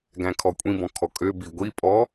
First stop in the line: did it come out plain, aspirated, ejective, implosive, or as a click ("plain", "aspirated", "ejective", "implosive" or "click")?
plain